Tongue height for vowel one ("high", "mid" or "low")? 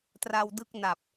low